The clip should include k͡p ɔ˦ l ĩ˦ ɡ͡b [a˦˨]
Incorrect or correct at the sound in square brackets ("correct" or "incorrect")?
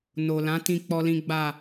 correct